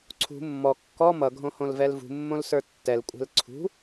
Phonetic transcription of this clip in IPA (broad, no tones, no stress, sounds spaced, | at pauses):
ǀʰ ṳ mː ɔ kː ɔ m ʌ ɡʱ õ h õ l v ɛ l v ṳ mː õ l s ə˞ tː ɛ l kʷʼ ɛ̤ l ǀʰ ṳ